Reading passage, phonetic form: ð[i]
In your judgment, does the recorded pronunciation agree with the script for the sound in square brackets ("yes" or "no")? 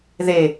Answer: no